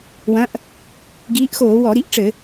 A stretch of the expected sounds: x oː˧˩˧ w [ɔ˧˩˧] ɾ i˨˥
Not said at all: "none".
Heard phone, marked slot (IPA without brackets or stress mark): ɔ˧˩˧